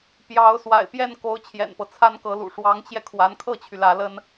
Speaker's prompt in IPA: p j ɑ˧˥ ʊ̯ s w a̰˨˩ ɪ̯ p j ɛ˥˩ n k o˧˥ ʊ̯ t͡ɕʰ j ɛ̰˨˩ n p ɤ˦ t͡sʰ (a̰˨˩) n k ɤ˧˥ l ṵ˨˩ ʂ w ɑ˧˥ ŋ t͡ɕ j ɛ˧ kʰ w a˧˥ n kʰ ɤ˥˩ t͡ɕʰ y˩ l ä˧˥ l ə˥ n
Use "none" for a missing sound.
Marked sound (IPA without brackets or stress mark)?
a˥